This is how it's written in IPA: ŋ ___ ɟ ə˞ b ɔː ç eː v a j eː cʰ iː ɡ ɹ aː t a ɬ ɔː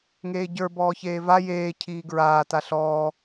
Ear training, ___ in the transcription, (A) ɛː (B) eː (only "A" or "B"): B